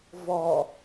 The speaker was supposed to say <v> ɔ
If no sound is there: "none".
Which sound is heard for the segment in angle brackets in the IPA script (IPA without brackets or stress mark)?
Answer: v